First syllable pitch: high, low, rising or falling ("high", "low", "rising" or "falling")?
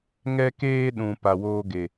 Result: high